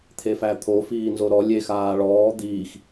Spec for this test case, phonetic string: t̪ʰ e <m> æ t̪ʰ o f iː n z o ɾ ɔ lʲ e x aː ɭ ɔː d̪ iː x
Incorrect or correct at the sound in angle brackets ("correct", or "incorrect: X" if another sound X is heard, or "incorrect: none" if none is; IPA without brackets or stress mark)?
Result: incorrect: f